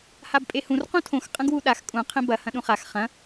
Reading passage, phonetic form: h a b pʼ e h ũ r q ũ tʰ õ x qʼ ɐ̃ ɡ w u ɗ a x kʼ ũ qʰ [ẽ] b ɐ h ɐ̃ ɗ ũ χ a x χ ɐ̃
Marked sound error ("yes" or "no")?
no